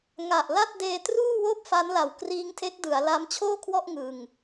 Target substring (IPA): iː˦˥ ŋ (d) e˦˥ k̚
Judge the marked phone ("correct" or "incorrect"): incorrect